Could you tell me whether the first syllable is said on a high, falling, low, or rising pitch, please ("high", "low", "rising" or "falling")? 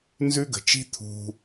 high